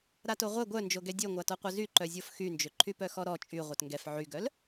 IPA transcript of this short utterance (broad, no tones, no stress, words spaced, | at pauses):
ɾatoʁʷɛ ɡʷœnd͡ʒoɡɛ dʲøŋʷatɔqʷœ zyǃœzʲof xynd͡ʒøǃʰy pœxɔɾɔ t͡ʃʼy ʁʷœtŋɡɛf ʕyɡœl